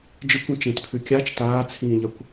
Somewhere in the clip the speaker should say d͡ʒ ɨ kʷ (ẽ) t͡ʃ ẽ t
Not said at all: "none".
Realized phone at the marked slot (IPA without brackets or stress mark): ĩ